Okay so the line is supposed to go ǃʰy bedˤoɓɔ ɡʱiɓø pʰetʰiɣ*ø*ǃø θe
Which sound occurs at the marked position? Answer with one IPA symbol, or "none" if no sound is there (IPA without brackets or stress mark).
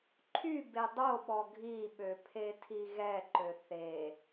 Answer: ɛ